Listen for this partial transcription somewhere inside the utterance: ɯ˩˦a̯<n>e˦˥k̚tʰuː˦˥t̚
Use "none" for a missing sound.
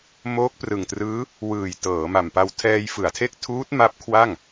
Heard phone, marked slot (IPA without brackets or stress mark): tʰ